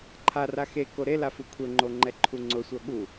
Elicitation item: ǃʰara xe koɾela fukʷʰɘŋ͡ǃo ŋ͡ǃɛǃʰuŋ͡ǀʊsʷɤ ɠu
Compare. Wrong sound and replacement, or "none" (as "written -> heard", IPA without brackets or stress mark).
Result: none